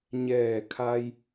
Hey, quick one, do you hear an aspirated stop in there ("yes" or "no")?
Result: yes